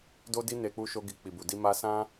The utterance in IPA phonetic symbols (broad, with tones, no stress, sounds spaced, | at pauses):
d o˦ d i˦ n e˧ k͡p u˧ ʃ o˧ ɡ i˨ k͡p i˨ b u˨ d i˧ m a˧ s ã˦